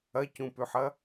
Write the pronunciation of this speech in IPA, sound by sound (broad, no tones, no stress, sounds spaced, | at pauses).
ɐ c ũ p ʉ ħ ɐ